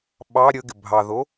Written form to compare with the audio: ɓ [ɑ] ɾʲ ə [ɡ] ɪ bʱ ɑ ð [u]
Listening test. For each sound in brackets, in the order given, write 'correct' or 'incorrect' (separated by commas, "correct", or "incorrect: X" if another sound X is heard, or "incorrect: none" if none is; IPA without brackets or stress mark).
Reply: correct, correct, incorrect: o